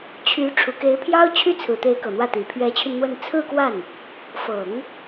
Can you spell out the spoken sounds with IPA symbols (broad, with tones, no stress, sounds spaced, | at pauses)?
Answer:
t͡ɕʰ y˧˥ ʈ͡ʂʰ u˨˩ k e˧˥ ɪ̯ pʰ j ɑ˥ ʊ̯ t͡ɕʰ y˥ t͡sʰ ɹ̩˨˩ t̪ e˧˥ ɪ̯ k ɤ˨˩ n̪ w ä˥˩ t̪ i˨˩ pʰ ɥ ɛ˧˥ t͡ɕʰ y˧ n n̪ w ə˥˧ n t͡sʰ ɹ̩˥˧ k w a˥˩ n | f ɤ˨˩˦ ŋ